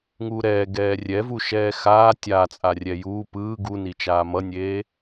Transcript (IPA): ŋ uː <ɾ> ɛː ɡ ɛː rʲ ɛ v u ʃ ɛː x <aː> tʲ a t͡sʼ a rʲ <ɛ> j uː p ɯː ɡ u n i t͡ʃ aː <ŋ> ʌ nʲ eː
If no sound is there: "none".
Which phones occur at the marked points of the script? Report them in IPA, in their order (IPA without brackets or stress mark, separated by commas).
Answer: ɾ, aː, ɛ, m